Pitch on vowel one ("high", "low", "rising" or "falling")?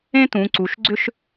high